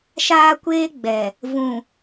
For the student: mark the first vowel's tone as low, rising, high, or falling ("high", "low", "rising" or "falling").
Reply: high